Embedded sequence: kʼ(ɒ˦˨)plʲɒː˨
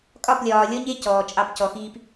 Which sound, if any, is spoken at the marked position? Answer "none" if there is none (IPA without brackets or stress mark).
ɒ˦˨